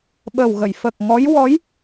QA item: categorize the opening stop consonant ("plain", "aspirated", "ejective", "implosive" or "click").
implosive